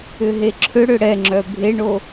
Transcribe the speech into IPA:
ʏɦeǁʰʏɽʏ ɽɛŋ͡ǁœ bʱeɳo

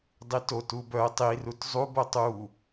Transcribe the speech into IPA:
dˤito tubœə̯ tˤi rutzˤu botˤu

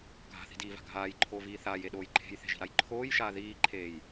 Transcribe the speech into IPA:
ɡʱa̤θi̤diːva̤ ɡʱaːjǃʰoːviː θaːjeɗoːj ǃʰe̤jθe̤ʒi̤ɾaj ǃʰoːjʃaː ðiːǃʰeːj

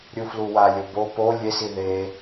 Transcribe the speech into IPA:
ɾʲufluwalʲo bo po lʲesi ðe

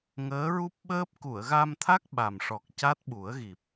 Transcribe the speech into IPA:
ŋəː˧˥ɹu˦˥p̚ɓəː˦˥p̚ ku˨˩˨ə̯ɣa˧mt̪ʰa˦˥k̚ ɓa˨˩mʂɔ˨˩k̚ ca˦˥t̚ɓu˨˩˦ə̯ɣi˨˩p̚

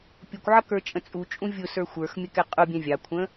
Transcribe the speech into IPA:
pʲʊkʷʕʌkə˞ t͡ʃʼə̃t͡sʼut͡ʃʼũ vʲʊsə˞ xʷə˞xmʲəkɛ qʼʊ bʲɛ̃vʲɑkʷʰə̃

